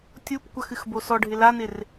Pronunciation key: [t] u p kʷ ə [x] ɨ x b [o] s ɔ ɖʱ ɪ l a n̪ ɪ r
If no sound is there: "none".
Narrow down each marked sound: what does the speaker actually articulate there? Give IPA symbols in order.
tʲ, x, o

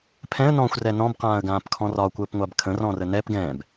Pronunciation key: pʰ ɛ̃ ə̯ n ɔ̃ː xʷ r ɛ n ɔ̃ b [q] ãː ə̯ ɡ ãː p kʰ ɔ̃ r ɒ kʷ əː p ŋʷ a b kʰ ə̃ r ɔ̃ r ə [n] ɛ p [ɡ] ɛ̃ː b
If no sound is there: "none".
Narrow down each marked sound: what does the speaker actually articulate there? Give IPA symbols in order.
q, n, ɡ

